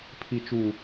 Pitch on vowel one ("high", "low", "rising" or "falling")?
low